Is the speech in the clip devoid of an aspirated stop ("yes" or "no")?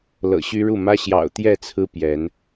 no